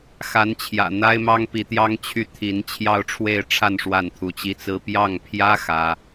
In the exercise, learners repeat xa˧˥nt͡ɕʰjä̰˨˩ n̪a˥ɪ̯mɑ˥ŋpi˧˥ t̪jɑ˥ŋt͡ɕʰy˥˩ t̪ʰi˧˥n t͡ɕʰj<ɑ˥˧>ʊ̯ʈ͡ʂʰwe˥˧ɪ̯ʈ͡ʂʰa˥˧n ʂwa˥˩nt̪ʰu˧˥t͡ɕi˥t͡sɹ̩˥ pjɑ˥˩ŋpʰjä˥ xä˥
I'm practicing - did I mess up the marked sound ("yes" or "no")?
no